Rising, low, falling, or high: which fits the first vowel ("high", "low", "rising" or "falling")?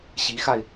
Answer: rising